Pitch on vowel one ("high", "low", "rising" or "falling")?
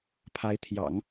rising